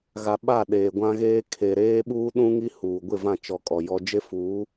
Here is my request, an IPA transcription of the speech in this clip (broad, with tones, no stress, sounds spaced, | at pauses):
ɣ a˨ ɓ a˦˨ ɗ eː˨ ɡʷ ã˦ ɣ eː˦ kʰ e˨ ɾ eː˦ ɓ uː˦ ɗ ũ˦ ŋ i˦ h uː˨ ɡʷ ɪ˦˨ v ã˦˨ t͡ʃ ɔ˨ kʼ ɔ˨ j ɔ˦ d͡ʒ e˦ f uː˨˦